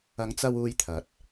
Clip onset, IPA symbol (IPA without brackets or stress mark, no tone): ɐ